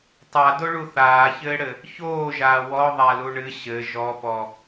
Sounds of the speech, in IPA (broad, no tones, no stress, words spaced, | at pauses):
tˤadoɭu θaːçɘːɽɘ | çoːʒaː wɔðˤalu ɳɨ ɕɘ ʒɔpɔ